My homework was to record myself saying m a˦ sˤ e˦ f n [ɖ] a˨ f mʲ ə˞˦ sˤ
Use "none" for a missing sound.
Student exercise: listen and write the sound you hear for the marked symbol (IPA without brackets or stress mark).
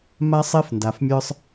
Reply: d